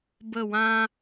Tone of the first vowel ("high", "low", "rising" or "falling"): falling